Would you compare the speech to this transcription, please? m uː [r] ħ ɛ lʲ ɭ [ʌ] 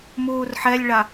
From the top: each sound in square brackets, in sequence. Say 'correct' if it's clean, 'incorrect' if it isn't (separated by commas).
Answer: correct, incorrect